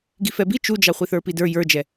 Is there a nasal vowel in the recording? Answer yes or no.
no